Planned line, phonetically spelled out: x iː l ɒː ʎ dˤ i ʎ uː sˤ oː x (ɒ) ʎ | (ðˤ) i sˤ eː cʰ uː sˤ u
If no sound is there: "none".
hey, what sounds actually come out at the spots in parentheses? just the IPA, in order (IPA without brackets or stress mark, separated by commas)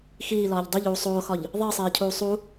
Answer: ɒ, ðˤ